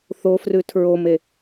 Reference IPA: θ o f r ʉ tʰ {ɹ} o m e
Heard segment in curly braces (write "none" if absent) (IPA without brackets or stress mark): ɹ